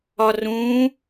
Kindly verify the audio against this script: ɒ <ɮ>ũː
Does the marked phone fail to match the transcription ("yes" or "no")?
yes